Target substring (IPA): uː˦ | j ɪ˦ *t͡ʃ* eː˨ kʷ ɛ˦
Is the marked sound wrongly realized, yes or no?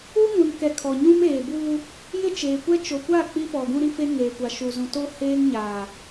no